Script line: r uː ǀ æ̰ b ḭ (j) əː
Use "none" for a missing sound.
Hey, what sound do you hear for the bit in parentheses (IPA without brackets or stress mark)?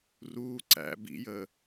j